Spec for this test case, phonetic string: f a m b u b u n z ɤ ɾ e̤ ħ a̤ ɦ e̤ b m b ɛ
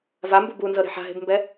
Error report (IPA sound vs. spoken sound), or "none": f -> v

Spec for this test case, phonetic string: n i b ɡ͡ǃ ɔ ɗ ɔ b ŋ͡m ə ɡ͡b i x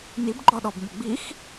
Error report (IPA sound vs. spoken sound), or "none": none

